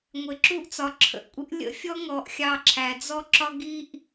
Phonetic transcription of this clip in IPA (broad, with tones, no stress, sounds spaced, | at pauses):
ŋʷ ɪ˨ ǁ u˦ ʔ t͡s ɒ˨ ǁʰ ə̰˨ ʔ kʷʼ ɪ˦ ʔ lʲ ə̰˦ fʲ ɔ˦ ŋ ɔ˨ ʔ xʲ ɑ˦˨ ǁʰ æ˨ d͡z ɔ˦ ǁ ɒ˦ ɡ i˦ ʔ